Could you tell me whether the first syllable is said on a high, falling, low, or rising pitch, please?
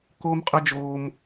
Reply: high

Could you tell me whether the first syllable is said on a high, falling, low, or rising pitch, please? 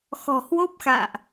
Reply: low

